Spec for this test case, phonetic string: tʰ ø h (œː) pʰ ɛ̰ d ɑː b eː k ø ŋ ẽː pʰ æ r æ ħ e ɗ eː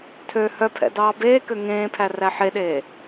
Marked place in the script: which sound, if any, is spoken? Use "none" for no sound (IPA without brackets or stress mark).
œ